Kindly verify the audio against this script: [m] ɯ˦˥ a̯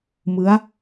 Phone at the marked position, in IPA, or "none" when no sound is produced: m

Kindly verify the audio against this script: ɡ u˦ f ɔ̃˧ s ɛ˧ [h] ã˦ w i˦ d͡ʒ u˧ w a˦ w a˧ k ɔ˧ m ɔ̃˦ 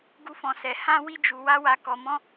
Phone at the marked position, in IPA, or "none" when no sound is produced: h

